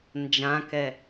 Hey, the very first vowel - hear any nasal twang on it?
yes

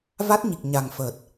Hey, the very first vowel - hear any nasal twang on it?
no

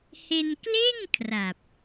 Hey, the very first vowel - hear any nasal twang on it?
no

